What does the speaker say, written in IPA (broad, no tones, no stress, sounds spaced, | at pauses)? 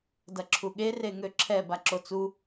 d ɐ ǁʰ u ɠ e r e ŋ ø ǁʰ ɛ b a ǁ o t͡s u